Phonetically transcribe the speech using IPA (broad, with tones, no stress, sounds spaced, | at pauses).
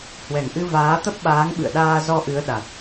h w ɛ˨˩ ŋ ʔ ɨ˧ v aː˨˦ t̪ ə˦˥ p̚ ɓ aː˨˦ ŋ ɓ ɨ̰˧˨ ə̯ ɗ aː˧ z ɔ˧ ʔ ɨ˨˦ ə̯ ɗ a˨˩ t̚